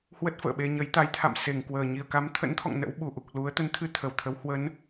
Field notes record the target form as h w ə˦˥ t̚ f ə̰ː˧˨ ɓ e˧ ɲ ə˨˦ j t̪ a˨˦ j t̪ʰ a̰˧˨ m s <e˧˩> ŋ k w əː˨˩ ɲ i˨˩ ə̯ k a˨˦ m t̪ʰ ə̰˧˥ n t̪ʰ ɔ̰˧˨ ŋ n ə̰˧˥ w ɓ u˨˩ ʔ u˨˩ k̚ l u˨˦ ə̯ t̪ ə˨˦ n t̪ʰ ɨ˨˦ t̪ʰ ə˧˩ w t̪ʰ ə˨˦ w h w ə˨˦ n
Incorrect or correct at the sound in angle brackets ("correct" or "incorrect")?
correct